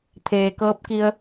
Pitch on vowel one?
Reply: low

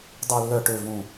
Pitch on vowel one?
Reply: low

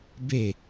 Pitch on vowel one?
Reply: falling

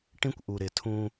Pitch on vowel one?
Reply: high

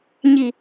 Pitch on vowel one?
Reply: low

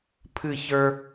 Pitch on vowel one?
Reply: falling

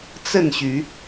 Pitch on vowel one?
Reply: falling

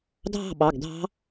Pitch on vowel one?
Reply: falling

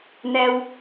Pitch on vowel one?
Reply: low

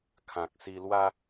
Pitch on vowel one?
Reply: low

